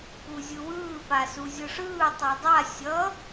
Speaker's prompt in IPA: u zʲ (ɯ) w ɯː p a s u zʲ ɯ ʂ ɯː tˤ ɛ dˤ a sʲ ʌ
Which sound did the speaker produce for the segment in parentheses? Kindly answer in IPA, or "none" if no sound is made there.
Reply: ɯ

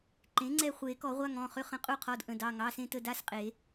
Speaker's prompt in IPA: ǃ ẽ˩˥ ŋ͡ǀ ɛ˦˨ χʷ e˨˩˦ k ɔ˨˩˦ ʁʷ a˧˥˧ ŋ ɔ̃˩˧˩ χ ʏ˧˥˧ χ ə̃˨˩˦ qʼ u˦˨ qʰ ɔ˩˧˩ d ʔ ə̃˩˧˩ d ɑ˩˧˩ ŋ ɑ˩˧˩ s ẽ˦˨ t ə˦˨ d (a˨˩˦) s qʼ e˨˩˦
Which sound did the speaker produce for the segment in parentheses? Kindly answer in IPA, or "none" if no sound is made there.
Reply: a˧˥˧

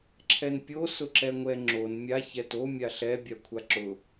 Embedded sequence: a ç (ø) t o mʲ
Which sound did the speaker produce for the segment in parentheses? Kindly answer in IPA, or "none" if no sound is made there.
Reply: ɛ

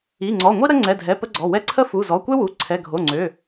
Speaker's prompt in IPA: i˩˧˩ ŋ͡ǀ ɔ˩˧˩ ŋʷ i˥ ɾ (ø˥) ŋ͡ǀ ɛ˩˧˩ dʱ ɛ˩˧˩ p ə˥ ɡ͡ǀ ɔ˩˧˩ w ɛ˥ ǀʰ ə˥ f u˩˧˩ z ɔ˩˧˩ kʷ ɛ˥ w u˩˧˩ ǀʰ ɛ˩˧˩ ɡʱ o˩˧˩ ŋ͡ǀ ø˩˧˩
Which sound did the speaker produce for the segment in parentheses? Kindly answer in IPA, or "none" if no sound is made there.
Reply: ə˥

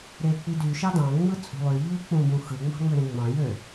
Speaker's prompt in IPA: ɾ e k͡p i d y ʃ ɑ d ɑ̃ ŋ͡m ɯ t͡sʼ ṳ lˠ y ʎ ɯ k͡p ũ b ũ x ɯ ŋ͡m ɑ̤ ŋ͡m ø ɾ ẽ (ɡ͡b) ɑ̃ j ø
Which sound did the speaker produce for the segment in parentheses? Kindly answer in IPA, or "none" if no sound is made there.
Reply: ŋ͡m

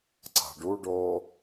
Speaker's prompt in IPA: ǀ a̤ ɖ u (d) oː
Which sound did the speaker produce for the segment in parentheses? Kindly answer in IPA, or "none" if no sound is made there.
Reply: ɖ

